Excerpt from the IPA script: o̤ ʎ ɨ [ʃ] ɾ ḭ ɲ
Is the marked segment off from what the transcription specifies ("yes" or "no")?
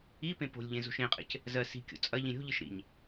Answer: no